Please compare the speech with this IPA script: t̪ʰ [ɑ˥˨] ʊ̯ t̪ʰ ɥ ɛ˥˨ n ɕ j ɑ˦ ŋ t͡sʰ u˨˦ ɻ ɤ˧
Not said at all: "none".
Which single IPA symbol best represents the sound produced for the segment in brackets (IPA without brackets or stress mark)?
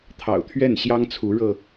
ɑ̰˨˩